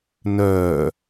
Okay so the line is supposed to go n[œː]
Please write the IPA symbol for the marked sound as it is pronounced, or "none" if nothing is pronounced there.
œː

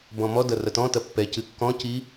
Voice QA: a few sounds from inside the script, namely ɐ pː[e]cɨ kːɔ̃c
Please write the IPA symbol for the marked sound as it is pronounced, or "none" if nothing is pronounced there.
ɛ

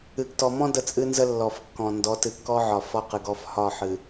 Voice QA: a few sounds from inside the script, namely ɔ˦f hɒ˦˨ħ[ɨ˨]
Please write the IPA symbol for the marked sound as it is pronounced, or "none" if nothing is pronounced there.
ɨ˨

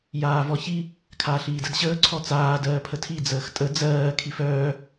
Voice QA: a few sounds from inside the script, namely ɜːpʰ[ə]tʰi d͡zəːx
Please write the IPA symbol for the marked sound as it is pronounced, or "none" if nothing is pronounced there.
ə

